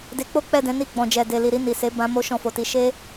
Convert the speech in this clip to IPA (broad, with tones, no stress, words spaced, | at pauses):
de˧k͡po˦ k͡pɛ˦˨dɛ̃˨˦ ni˦˨ɡ͡bɔ̃˨d͡ʒɛ˨ de˨li˨ɾi˧ ni˨se˨˦ bã˧ mo˦ʃɔ̃˧fo˨ti˧ ʃe˦